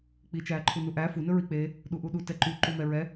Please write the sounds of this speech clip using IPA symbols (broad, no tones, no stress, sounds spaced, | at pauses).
k͡p i t͡ʃ æː ǃʰ u n u ʔ æ f u n ɵ ɹ i k͡p e | ɗ u ʔ u ɗ u t ɛ ǃ y ǃ u m ɛ ɹ ɛ